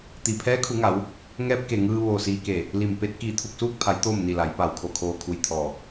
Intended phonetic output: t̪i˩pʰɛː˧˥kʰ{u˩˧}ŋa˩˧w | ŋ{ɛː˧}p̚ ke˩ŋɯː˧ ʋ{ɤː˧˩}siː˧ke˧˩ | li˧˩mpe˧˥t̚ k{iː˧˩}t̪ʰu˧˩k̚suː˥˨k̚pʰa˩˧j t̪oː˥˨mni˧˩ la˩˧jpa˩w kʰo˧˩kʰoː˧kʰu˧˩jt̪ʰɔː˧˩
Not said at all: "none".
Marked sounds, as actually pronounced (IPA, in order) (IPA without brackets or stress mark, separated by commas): u˩˧, ɛː˧, oː˧˩, iː˧˩